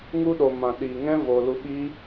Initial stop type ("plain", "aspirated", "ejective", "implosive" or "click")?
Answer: implosive